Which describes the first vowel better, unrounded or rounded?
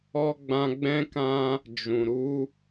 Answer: rounded